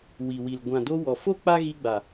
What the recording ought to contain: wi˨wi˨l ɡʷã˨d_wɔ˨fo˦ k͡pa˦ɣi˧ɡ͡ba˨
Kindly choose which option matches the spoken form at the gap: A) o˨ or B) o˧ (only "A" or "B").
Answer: B